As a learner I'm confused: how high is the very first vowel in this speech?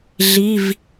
high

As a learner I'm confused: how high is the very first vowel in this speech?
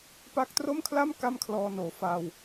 low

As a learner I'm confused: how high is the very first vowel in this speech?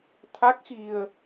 low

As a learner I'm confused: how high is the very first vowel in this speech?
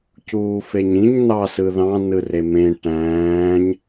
high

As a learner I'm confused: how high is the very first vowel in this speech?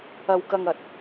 low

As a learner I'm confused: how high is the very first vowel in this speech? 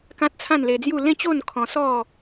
low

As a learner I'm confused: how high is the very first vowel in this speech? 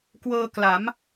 mid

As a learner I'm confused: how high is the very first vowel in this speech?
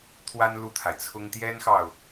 low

